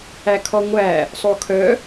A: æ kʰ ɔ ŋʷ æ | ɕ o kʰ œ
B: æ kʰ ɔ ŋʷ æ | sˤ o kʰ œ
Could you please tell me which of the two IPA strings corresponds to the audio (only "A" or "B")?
B